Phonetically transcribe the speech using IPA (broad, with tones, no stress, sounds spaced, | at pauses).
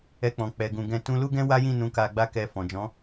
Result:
ɛ˧ k͡p ɔ̃˨ k͡p ɛ˨ ɡ ũ˨ ɡ ɛ̃˧ t ũ˦ l u˦ ɡ ɛ̃˦ w a˦ j ĩ˦˨ n ũ˧ k a˧ ɡ͡b a˦ k ɛ˧ f ɔ̃˨ d͡ʒ ɔ̃˨˦